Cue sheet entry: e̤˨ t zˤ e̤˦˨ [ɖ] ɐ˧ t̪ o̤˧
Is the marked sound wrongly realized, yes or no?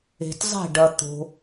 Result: no